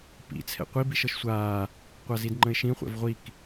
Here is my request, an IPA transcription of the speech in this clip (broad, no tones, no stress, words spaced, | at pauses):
pḭt͡sʰɛ̰ qʷi biʃɤʃsʷaː | qʷazidŋ͡ǃə̃ɪ̯ʃĩ χʷɛ̰vʁʷik